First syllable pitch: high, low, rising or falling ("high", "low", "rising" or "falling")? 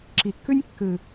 low